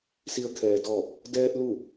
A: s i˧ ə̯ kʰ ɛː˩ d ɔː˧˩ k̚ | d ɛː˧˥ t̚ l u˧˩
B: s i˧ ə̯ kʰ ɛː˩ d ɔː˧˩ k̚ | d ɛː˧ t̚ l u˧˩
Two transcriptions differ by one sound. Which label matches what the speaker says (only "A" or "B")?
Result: B